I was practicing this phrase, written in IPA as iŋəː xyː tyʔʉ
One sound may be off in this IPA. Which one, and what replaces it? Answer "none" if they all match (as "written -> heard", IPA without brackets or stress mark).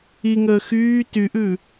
none